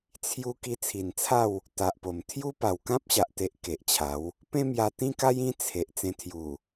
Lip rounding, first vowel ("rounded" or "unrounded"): rounded